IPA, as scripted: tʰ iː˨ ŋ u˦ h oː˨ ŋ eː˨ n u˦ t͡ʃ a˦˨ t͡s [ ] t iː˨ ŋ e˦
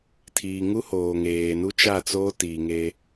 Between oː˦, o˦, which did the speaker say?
oː˦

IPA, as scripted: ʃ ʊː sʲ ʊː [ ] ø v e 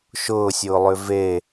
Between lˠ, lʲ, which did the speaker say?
lˠ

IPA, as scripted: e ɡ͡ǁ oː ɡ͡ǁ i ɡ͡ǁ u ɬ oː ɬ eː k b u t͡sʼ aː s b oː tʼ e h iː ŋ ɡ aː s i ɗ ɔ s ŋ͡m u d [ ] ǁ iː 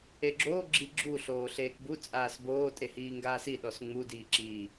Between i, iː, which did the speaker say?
iː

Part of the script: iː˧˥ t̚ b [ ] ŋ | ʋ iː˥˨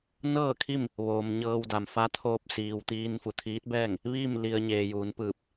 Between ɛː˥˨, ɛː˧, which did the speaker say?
ɛː˥˨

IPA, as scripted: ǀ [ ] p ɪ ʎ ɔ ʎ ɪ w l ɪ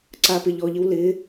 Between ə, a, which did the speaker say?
a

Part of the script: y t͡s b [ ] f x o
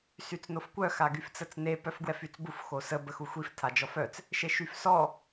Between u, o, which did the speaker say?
u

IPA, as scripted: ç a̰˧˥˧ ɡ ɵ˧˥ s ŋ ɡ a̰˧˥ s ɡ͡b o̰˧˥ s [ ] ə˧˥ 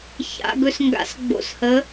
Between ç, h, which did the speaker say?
h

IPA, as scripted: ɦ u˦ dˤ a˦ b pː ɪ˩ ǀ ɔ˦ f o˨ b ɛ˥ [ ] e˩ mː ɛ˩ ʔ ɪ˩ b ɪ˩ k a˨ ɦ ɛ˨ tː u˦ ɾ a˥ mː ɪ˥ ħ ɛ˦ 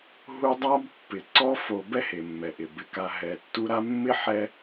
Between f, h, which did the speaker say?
h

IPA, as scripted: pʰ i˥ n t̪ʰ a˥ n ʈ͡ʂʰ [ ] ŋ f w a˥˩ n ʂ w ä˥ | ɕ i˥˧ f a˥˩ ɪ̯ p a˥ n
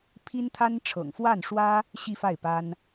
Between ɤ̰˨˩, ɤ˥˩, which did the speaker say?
ɤ̰˨˩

